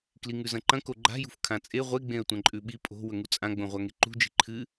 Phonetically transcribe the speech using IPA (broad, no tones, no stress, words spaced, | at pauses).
kliŋʉzɐ̃ǃɐ̃ koɡ͡ǃa̤ jṳfkʰãt͡sʼe ʁʷeɡ͡bẽə̯ tʷɐ̃ǃʼʉɓi pʼo̤ wɵŋut͡sʼã ɡ͡bõʁʷaŋeǃṳ d͡ʒi̤ǃʰɨ